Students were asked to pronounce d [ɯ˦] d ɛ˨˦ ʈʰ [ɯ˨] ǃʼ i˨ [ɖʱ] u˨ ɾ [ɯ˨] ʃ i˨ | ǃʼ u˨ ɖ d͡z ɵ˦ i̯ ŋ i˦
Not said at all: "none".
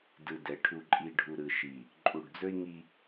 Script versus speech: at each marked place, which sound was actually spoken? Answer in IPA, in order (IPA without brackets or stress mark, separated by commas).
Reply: ɯ˨, u˨, ɖʱ, ɯ˨